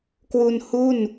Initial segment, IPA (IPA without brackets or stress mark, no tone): k